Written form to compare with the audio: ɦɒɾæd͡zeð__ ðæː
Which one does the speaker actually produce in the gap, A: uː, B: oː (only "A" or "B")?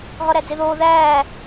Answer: B